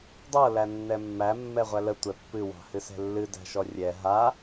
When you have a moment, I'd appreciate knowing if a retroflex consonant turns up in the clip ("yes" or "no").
no